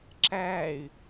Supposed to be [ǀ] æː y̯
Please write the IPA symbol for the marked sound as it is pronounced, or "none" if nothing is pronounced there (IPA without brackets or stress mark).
ǁ